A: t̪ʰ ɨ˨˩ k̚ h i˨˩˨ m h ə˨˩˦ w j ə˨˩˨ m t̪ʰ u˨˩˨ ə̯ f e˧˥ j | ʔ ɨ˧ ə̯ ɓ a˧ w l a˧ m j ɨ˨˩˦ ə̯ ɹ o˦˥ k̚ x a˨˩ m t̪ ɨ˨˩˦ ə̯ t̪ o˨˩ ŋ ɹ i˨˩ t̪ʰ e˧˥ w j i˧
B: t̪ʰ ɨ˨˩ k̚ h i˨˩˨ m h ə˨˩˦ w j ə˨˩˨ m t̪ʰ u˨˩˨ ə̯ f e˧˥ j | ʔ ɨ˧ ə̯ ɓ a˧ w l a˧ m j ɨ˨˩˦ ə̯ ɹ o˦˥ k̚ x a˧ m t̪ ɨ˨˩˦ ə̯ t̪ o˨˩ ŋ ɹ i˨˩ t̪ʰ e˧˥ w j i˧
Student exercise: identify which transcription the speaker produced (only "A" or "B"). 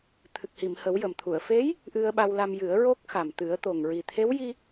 A